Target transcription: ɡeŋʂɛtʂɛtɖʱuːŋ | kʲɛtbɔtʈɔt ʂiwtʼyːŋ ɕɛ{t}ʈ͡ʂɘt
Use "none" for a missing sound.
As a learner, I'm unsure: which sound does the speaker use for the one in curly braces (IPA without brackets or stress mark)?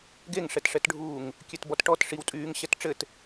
t